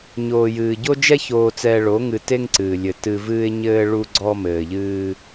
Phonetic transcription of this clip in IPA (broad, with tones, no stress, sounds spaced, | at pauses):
ɲ oː˨ j ɨː˨ ɟ o˦ d͡ʒ ɛ˦ ç oː˨ t͡s ɛː˨ ɭ o˨˦ ŋ ɨ˨ t e˦ ŋ ǀ ɨː˨ lʲ ɘ˨ t ɨ˦ v ɨː˦ ɪ̯ ɲ ɘː˦ ɭ u˦ ɡ͡ǀ ɔ˦ m ɘː˨ ʎ ɨː˦